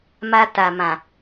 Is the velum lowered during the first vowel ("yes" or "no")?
no